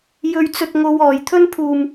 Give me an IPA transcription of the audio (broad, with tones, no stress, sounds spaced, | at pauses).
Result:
j ɵ˧ ɥ t͡s ɵ˧ t̚ ŋ o˨˧ w ɔː˨˩ j t̪ʰ ɵ˥ n pʰ uː˨˩ m